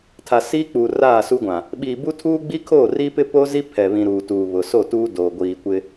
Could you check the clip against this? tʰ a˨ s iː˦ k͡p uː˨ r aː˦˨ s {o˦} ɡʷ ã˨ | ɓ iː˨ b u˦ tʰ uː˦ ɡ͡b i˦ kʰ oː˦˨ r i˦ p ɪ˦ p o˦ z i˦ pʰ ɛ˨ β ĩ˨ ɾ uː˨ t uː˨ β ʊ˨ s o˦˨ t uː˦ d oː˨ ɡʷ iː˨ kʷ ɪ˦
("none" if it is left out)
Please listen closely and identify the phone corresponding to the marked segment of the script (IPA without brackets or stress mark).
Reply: u˦